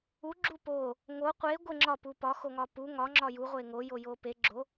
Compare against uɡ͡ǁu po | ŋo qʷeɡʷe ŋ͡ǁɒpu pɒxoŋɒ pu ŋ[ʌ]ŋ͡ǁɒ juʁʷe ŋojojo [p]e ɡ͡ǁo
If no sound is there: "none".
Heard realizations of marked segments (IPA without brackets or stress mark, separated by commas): ɒ, p